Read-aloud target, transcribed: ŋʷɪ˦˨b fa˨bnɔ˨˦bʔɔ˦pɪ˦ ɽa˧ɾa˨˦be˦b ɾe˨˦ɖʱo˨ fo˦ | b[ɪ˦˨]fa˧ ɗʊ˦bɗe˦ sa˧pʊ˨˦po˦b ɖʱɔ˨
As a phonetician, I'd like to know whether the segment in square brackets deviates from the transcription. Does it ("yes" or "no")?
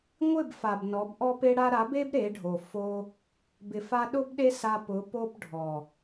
yes